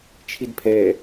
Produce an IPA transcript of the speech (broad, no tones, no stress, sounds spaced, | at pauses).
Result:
t͡ʃʰ i d pʰ ɛ